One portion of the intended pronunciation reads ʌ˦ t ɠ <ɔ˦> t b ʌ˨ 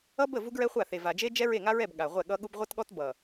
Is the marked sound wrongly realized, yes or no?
no